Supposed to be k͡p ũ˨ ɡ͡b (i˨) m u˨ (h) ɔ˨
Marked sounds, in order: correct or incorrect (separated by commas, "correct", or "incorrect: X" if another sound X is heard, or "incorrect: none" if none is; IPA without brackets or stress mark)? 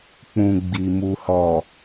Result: correct, correct